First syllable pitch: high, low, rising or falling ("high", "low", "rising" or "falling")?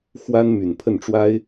high